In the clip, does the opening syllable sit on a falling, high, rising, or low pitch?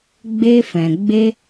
high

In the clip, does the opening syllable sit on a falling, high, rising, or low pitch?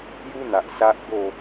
high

